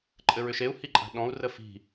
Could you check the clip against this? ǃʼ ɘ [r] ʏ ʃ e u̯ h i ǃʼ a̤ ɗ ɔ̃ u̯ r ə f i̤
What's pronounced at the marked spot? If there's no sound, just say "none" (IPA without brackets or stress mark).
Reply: ɹ